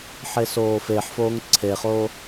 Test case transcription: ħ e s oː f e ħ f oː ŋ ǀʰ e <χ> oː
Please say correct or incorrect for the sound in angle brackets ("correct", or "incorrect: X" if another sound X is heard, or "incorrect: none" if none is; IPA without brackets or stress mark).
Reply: correct